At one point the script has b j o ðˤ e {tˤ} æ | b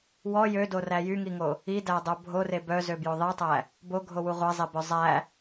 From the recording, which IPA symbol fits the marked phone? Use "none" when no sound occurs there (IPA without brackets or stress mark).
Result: tˤ